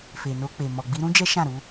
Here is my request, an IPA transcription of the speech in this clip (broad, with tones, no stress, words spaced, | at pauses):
fe˨no˧k͡pe˨ mɔ˨ɡ͡bi˧ɾũ˦ d͡ʒɛ˦ʃã˦˨ ɾu˧